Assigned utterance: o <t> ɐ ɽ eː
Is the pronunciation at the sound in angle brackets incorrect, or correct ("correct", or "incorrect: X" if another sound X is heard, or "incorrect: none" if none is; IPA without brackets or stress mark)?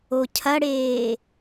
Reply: incorrect: cʰ